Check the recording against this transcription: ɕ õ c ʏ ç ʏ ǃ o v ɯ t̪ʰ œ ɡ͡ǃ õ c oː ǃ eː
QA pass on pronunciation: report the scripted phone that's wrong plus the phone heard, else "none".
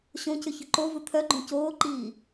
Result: eː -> iː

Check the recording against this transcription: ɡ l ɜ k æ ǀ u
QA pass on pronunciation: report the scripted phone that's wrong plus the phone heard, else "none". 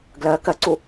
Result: æ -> ɜ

